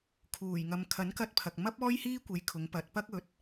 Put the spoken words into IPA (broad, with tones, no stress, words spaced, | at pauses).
kʰuː˨˩j ŋɐ˨mkʰɐ˨˥nkɐ˧t̚pʰɐ˨k̚ mɐ˥p̚ ɔː˥jhiː˥kʷe˨˧j kʰʊ˨˧ŋpɐ˨˥t̚ pɐ˧k̚ɵ˨˥t̚